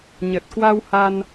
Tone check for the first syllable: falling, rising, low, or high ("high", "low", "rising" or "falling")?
low